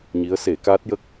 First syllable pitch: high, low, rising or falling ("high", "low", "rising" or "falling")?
rising